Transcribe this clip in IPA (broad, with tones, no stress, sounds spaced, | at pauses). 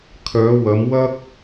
kʰ œː˨˧ w ɐ˨˧ m w ɐ˥ k̚